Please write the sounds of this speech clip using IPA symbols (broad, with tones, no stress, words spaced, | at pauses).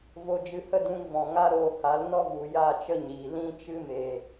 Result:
vo˧d͡ʒɨ˧hə˦dũ˧ŋ vɔ̃˨ŋa˦ɾoː˧ ha˨˦lnɔ˦vu˨ ja˦˨t͡ʃə˦ɲiː˨ lĩ˧t͡ʃɨ˧me˨